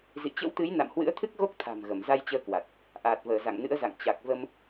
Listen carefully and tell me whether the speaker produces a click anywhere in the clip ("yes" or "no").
no